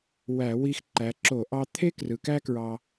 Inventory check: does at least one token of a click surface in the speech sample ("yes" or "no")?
yes